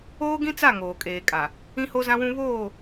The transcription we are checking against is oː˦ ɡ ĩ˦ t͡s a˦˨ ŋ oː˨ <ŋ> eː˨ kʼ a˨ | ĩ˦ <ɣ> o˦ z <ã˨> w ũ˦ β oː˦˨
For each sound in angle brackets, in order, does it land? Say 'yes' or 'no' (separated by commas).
no, no, no